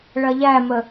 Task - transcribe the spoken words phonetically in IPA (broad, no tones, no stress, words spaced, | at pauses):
ɭɐʎæmə